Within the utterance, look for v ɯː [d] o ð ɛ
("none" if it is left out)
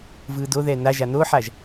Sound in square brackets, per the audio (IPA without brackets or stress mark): d